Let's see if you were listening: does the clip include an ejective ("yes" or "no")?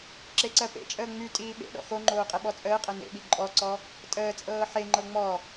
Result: yes